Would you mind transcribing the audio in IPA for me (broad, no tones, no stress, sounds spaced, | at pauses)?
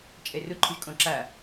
t͡ʃʼ ɛ r ʊ ǃʰ ʊ ʒ kʼ ɔ̃ ǁ a